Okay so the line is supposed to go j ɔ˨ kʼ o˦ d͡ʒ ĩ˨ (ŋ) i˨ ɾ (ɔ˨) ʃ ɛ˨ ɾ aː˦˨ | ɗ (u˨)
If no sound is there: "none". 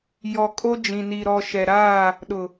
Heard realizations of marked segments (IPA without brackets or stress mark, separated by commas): n, ɔ˨, ʊ˨